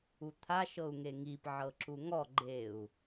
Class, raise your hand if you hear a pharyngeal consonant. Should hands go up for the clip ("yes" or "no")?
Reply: yes